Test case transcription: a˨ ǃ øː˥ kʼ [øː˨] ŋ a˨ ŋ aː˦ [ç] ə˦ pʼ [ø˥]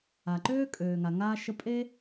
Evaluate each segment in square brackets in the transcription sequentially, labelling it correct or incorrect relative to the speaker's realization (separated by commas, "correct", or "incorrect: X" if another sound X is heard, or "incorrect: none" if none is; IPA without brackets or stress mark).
correct, incorrect: ʃ, incorrect: e˥